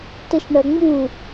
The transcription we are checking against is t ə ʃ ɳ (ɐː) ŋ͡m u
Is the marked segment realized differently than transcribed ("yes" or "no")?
yes